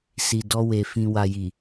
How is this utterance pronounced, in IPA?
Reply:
s i˨ d ɔ˧ w e˨ f ĩ˨ w a˨ j i˨

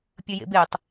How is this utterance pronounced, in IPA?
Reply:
pʲ ə j ḛ b e tˤ

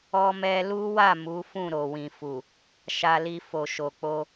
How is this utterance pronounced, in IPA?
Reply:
ɔ˧ m ɛ˧ l u˦ w a˦˨ m u˨˦ f ũ˦˨ ɾ o˨ w ĩ˨ f u˨ | ʃ a˧ l i˧ f o˨ ʃ o˨ k͡p o˧

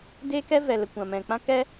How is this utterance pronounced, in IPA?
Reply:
d eː˦ k ɛ˦ v ɛ˨ l ə˨ kʷ ã˨ m ɛ̃˨ k͡p ã˦ k ɛ˦

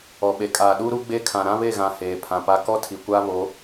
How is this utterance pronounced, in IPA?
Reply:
ɔ˨ ɓ e˨ kʼ aː˨ ɗ uː˦ ɾ u˦ ɡ͡b e˦ kʰ ã˨ ɾ ã˦ β e˦˨ ɣ ã˨ h eː˨ pʰ ã˨ p a˦ k ɔ˦ tʰ i˨ kʷ aː˦ β o˨˦

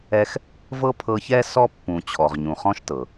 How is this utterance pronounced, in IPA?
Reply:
ɛ˦ x | v ɤ˥ pʰ ɤ˦ ç ɛ˥ s ɔ˥ pː ũ˨ t͡ɕʰ ɔ˨ ʁ ɲ ũ˨ χ ɔ̃˥ ʃ t ɤ˩

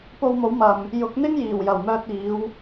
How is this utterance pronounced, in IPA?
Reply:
p o˧ w m o˨˥ w m ɐ˨ m | j ʊ˨˥ k̚ n̪ ɪ˥ ŋ j iː˨˩ w j ɐ˨˩ w m œː˧ t̚ iː˨˧ w

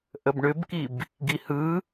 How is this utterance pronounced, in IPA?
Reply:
ʔ ə b ɳ ʏ b k i b | ɡ i h ɯ

